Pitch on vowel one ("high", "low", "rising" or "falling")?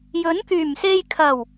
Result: rising